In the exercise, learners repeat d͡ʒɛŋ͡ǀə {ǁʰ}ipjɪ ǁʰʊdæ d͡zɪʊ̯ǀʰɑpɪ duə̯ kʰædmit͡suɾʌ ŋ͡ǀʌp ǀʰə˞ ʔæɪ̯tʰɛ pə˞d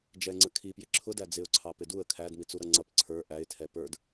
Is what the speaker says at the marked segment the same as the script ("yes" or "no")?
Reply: no